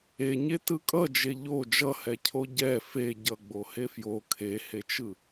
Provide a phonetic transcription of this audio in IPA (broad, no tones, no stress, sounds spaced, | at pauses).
e ɲ e t ɯ kʼ ʌ d͡ʒ e ʎ o d͡ʒ ʌ h ɛ cʰ o ɟ ɛ f e ɟ ʌ ɡ͡b o h e f j o kʰ e h e t͡ʃ ɯ